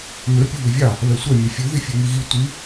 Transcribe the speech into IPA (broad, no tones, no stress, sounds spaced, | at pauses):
m ø pʲ u β ʉ vʲ ɑ | β ɛ sʷ ɛ mʲ ɛ fʲ ʉ ð i fʲ ʉ ŋ i ɣ i tʷ i